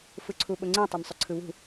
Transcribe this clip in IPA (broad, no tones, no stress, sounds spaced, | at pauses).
f ɯ ǀʰ u ɓ ʊ ŋ͡ǀ ĩ tˤ o m sˤ ʊ ǀʰ ɯ β ṳ